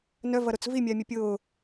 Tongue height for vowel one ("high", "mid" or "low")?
mid